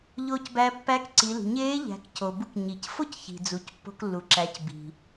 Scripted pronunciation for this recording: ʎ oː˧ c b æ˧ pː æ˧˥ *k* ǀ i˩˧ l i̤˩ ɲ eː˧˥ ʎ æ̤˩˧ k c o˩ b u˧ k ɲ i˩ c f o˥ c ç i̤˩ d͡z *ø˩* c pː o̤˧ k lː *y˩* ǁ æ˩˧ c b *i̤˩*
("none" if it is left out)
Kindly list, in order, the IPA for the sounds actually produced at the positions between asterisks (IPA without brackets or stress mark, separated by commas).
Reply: k, u˩, u˩, i̤˩